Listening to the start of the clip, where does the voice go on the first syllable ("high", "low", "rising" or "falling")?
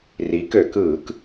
rising